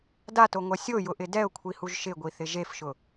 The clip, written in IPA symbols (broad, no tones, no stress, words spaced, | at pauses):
datoŋʷɛ sʲojʊʔɪ dɛʊ̯kʷʰihuʒ ʃɪɡʷiθɪ ʒefʃʊ